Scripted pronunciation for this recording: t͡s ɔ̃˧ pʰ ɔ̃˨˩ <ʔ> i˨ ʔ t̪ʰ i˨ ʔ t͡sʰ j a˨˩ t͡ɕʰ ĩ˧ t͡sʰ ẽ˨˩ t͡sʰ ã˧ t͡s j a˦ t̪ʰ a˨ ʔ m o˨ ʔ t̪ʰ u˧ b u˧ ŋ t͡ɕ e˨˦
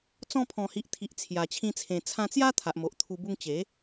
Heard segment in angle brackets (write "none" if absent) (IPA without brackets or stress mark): h